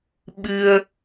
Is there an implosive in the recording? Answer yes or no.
yes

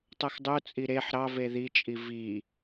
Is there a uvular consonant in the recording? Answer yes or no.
no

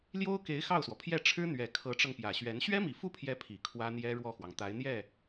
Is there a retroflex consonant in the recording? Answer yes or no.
yes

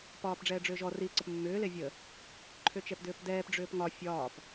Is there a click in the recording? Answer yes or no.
yes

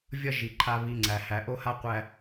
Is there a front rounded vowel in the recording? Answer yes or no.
no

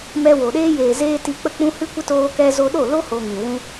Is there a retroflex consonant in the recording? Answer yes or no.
no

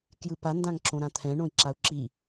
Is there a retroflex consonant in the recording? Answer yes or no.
yes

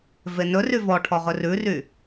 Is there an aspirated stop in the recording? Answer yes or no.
yes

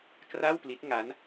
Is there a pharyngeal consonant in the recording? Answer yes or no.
no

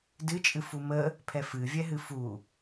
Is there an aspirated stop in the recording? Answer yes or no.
yes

